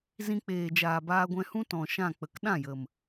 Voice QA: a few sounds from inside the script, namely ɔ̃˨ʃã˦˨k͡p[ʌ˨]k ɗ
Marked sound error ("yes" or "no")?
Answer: yes